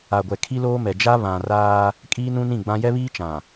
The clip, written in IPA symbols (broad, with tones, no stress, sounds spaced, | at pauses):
a˨ ɡʷ ɛ˨ kʰ i˦ l oː˦ m ɛ˨ d͡ʒ a˦ β ã˨ r aː˦ | kʼ iː˦ n ũ˦ n ĩ˦˨ ɡ͡b ã˦ j ɛ˦ β iː˦ t͡ʃ ã˨